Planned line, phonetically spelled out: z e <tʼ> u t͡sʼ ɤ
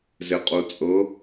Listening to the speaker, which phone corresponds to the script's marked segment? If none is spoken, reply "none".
qʼ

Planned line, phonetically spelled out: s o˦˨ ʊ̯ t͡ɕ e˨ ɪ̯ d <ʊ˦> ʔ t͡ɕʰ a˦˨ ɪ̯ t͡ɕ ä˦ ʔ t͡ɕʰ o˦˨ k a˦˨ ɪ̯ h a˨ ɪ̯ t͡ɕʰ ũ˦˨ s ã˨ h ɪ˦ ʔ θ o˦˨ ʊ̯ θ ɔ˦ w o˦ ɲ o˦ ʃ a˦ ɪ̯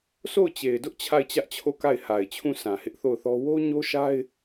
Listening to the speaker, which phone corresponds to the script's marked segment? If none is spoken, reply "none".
ʊ˦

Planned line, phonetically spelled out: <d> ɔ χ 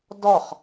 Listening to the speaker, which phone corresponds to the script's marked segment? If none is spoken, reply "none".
d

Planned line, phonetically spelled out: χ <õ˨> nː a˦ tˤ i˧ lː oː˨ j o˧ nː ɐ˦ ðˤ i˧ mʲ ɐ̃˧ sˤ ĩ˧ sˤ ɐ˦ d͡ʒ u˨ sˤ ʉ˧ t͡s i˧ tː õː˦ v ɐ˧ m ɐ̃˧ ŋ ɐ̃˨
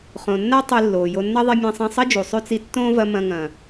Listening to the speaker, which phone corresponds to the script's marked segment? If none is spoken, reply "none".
õ˨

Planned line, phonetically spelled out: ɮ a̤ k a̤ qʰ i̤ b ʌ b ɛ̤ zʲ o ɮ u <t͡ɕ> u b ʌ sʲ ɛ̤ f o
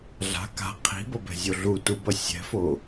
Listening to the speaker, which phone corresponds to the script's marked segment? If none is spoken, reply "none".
t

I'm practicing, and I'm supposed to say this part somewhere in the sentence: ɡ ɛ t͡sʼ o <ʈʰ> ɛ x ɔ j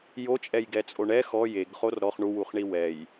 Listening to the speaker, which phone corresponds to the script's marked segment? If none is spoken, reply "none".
ɳ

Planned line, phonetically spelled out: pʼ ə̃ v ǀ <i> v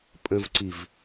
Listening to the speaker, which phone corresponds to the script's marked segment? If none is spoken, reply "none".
i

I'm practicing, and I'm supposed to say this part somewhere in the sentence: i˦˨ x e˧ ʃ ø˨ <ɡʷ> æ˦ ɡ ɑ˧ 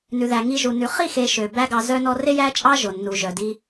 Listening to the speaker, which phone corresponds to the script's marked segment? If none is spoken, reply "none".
b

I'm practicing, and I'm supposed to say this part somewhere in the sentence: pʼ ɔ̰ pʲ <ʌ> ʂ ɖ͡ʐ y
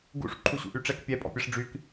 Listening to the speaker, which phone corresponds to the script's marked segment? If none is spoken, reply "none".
ʌ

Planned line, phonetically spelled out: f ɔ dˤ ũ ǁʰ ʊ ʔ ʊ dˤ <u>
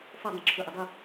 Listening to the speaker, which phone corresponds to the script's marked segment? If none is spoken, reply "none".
u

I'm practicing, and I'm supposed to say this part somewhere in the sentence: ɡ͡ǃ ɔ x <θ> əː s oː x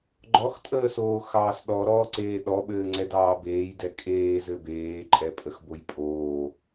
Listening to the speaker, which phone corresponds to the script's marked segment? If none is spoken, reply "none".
tʼ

